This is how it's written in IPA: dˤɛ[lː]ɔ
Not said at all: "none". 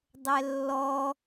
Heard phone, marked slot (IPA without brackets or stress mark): lː